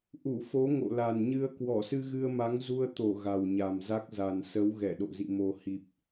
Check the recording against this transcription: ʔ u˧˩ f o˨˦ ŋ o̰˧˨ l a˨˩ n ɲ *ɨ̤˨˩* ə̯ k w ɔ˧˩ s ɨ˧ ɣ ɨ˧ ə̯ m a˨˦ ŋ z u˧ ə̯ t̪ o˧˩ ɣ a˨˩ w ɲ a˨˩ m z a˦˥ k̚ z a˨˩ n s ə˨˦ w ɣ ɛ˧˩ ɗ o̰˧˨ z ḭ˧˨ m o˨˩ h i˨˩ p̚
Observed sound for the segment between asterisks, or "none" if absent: ɨ˧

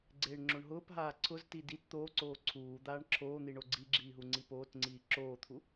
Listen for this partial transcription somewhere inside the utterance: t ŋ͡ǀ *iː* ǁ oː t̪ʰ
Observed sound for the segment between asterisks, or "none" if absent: iː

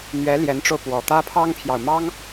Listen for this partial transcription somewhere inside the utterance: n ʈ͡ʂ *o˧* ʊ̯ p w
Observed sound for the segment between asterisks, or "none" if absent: o˧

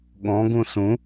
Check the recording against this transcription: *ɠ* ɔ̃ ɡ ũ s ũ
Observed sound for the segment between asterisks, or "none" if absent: ɠ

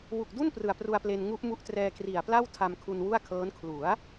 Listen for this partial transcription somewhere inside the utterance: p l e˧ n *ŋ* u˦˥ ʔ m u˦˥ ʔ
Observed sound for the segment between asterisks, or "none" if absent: ŋ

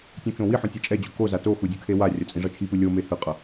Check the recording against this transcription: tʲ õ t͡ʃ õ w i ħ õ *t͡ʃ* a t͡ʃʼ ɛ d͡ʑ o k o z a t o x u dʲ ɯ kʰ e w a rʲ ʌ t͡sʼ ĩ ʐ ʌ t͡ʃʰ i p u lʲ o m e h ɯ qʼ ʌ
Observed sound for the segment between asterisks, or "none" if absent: tʲ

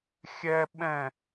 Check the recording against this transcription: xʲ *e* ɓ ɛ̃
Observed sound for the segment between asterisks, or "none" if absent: ɛ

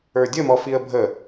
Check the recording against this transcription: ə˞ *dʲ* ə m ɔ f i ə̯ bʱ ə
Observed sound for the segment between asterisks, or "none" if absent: dʲ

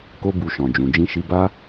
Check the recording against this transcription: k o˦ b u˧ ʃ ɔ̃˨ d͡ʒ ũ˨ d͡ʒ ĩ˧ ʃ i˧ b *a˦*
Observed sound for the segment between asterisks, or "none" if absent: a˦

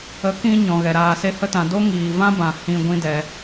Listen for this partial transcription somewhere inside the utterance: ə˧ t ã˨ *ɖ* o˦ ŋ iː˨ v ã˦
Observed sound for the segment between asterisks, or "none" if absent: d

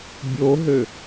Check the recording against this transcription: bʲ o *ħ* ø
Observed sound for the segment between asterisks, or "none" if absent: ɦ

